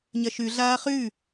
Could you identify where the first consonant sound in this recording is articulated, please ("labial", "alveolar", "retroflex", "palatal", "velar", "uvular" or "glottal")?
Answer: palatal